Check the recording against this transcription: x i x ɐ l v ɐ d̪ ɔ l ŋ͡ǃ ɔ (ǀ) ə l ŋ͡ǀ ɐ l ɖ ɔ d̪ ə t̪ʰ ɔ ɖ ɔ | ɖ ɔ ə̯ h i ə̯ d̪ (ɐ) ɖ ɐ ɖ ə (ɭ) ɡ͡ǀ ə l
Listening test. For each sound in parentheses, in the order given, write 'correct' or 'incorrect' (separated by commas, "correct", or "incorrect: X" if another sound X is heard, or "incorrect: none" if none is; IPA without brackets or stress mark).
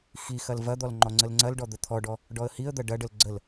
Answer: incorrect: ŋ͡ǀ, correct, incorrect: l